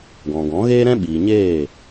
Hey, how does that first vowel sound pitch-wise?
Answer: low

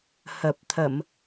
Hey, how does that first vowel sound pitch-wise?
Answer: low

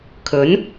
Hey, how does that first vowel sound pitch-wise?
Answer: rising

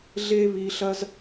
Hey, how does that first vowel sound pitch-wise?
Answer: high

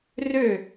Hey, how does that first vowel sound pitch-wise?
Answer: falling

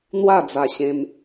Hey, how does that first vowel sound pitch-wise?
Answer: falling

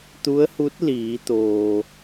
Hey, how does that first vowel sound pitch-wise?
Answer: rising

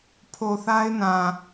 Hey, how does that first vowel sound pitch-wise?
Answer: low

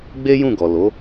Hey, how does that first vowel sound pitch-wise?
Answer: high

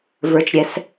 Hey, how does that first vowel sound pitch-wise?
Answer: low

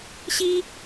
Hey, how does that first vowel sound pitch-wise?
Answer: high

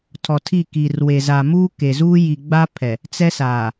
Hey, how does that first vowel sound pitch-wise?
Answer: low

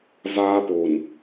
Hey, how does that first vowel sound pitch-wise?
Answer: high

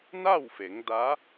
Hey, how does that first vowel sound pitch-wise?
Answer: falling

